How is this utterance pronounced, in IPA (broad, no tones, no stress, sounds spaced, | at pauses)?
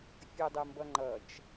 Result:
fʲ ʌ dˤ ə m b ʌ ŋ͡ǃ ʌ t͡ʃ